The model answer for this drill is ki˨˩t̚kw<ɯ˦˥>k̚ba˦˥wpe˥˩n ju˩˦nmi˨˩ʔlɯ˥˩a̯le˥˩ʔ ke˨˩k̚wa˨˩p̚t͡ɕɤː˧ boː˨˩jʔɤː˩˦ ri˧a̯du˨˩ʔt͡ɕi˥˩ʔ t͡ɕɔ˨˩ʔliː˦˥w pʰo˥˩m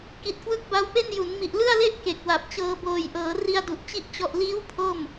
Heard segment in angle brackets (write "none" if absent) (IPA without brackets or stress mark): ɯ˦˥